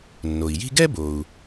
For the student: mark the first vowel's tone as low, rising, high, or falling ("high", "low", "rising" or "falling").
low